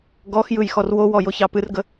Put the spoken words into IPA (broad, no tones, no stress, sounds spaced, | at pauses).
ɡ ɔ x j ɯ j x ɔ r w o w ɔ j o ç ɑ p ɨ r ɡ ə